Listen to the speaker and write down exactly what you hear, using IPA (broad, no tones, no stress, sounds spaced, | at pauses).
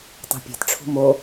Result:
tˤ ṳ pʲ e̤ t ʈ͡ʂʰ ṳ m o